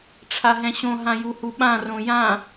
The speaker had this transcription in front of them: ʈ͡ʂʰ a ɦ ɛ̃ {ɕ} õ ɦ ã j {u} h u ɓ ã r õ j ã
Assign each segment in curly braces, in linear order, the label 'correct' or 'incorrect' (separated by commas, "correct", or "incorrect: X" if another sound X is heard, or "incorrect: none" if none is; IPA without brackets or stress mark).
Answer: correct, correct